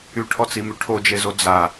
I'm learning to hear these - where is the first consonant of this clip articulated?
retroflex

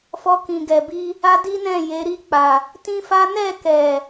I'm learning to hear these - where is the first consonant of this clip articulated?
lips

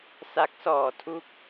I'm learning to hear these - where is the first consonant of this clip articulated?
tongue tip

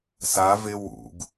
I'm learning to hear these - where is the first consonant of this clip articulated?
tongue tip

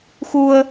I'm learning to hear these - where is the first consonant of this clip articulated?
velum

